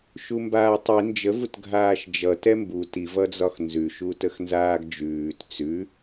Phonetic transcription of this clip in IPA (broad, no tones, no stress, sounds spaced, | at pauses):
ʃ u m b aː tˤ i n d͡ʒ ə v u t ɡʱ aː ʃ d͡ʒ ʌ t ɛ m b u t i v ʌ d͡z ɒ x n z ʉ ʃ u t ə x n z aː ɡ d͡ʒ ʉː t t͡s ʉ